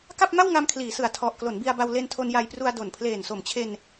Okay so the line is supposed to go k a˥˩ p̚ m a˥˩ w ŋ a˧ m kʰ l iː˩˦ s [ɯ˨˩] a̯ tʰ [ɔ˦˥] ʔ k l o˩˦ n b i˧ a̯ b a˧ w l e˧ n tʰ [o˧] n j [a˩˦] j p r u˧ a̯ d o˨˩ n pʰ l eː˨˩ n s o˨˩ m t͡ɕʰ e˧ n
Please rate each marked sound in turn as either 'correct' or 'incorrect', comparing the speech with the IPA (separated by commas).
correct, incorrect, correct, incorrect